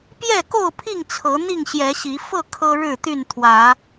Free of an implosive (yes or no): yes